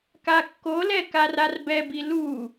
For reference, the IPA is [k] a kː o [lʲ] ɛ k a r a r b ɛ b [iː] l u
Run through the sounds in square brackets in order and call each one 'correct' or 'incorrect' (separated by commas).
correct, incorrect, incorrect